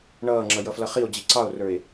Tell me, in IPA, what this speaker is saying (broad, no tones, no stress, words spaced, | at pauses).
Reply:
ɳʌːŋ͡ǁʌ jʌflʌχio̯ d͡ʑiǀɑo̯rə˞e̯